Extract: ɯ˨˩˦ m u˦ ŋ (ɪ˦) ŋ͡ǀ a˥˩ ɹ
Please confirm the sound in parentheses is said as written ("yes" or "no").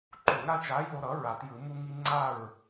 no